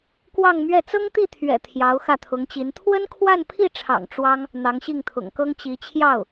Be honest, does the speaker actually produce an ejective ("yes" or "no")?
no